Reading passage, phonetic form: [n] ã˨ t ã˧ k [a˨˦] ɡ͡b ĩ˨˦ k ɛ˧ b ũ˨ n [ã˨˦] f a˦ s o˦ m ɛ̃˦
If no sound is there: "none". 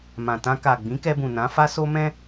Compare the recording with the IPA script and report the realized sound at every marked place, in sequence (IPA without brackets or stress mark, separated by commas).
m, a˨, ã˨˦